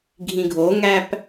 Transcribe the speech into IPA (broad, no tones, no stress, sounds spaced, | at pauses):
ɡʱ ĩ ɡʱ o ŋ æ p